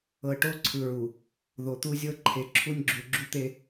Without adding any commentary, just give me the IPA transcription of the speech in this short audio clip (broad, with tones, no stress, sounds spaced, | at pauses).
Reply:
ɤ˨ ʈ o˦ ǀʰ ɯ˨ ɹ u˨ | ð o˨ t̪ u˦ zʲ ɤ˦ ǃʰ e˨ ǁʰ u˦ nʲ ɡ͡ǁ u˨ ɡ͡ǁ u˦ t̪ e˦